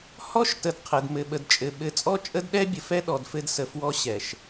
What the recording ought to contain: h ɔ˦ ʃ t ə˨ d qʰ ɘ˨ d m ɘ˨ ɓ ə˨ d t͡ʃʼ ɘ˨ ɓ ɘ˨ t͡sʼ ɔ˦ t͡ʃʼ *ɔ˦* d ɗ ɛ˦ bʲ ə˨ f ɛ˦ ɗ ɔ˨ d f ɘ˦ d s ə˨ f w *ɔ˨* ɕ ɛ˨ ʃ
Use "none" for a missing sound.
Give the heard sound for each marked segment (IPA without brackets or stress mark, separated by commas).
ə˦, ɔ˦